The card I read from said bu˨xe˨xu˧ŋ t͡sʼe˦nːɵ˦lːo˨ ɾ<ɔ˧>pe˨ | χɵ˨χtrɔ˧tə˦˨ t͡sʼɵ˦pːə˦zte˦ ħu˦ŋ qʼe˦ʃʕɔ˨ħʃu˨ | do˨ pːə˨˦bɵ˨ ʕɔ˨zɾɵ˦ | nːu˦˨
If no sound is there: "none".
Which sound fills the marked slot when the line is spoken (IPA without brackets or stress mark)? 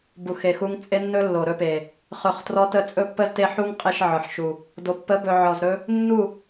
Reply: ɵ˧